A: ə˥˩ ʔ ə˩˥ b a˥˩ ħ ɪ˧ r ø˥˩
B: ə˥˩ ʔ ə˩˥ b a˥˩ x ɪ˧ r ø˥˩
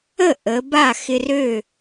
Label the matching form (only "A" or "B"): B